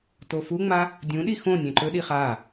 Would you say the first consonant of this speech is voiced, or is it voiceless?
voiceless